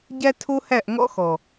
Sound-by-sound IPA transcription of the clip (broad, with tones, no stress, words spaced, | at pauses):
ɟæ˦tʰo˦hæ˦˨ʔ ŋɔ̰˦xɔ˨